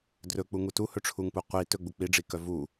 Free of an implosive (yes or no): yes